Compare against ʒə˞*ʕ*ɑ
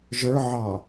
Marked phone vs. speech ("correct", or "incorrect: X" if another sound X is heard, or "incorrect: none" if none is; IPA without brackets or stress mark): correct